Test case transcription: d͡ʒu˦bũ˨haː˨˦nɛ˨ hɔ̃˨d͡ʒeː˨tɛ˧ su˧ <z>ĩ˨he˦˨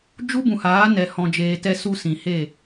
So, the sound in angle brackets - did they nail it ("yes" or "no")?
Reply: no